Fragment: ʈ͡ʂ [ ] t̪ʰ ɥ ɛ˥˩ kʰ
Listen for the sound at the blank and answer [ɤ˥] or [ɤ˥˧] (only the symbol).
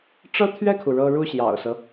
ɤ˥